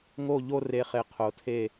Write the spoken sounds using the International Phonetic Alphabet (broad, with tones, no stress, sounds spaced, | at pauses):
ŋ o˧˩ ʎ o˧ r e˩˧ χ e˩˧ qʰ o˩˧ tʰ e˧˩